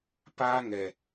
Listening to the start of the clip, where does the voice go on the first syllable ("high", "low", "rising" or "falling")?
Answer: high